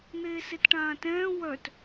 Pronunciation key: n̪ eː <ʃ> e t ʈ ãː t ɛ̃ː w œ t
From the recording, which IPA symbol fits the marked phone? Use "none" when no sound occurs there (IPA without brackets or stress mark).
s